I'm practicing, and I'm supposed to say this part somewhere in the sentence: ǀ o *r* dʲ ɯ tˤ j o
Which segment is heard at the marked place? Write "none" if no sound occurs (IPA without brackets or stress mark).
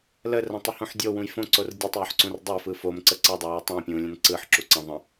r